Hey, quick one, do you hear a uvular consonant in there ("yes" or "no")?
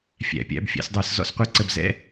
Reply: yes